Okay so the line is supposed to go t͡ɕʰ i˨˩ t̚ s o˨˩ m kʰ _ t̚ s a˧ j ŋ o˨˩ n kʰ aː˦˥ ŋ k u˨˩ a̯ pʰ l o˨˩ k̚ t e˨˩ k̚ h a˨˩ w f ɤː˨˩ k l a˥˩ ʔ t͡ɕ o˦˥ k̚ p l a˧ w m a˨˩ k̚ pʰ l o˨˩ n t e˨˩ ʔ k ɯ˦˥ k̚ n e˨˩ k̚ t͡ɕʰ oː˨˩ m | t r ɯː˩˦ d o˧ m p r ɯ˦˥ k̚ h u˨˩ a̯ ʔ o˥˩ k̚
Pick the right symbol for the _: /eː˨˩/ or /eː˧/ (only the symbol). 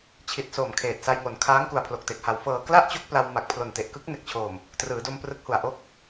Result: eː˨˩